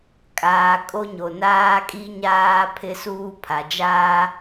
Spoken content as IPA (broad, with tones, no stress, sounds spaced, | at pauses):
kʼ aː˨ kʼ o˦ ɲ o˨ n aː˦ kʼ i˦ ɲ aː˦ pʰ ɪ˦ s uː˦ pʰ a˨ d͡ʒ aː˦